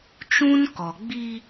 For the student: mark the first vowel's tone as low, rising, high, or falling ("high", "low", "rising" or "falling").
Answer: high